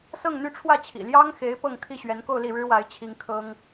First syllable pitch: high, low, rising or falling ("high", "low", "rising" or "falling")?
falling